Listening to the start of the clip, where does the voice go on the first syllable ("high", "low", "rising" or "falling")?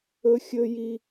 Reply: high